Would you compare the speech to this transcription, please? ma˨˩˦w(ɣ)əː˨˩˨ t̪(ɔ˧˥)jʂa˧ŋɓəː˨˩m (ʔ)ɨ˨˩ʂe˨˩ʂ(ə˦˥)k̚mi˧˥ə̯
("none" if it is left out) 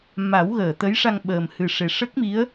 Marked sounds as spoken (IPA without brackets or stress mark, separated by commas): ɣ, ə˧˥, h, ə˦˥